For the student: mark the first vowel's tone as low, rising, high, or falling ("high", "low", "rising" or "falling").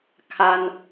high